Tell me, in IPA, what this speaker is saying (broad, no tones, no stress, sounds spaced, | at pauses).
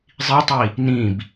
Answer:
zˤ i tˤ i | n ĩ b